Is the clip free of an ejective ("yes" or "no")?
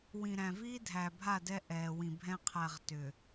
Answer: yes